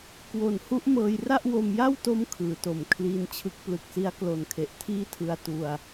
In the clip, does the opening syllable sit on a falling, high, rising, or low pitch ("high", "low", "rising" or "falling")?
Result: low